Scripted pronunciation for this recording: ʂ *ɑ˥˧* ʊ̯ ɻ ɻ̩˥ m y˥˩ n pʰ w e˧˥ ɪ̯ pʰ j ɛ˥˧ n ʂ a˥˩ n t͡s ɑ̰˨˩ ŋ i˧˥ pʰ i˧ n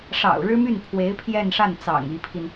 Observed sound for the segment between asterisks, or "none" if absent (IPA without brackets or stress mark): ɑ̰˨˩